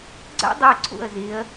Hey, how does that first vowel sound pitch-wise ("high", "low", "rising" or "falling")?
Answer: high